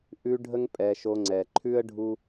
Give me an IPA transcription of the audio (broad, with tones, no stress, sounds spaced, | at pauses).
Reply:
ʔ ʉ˦ ɖʱ ə˦ ŋ pʼ ɛ˧ ʃ o˧ ŋ͡ǀ ɛ˨ ǃʰ ʉ˦ ə̯ ɖʱ u˦